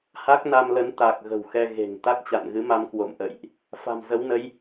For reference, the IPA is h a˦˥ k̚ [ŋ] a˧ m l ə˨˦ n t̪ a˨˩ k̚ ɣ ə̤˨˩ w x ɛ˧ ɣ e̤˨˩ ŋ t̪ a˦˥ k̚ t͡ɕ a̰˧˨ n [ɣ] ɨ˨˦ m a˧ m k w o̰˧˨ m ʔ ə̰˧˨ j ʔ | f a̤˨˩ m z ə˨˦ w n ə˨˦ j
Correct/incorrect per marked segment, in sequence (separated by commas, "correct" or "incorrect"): incorrect, correct